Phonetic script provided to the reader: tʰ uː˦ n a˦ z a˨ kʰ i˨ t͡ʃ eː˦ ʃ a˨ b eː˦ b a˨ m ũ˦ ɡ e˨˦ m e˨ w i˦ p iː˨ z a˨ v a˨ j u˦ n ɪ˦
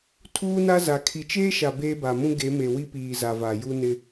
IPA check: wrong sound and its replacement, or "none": none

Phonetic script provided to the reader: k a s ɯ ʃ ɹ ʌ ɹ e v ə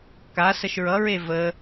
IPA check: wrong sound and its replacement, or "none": ɯ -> ə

